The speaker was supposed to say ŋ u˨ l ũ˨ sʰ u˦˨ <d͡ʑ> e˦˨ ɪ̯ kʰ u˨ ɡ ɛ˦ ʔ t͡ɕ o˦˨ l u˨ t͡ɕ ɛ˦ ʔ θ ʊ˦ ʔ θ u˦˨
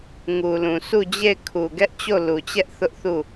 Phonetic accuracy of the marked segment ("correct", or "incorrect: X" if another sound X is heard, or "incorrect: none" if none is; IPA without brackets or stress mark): correct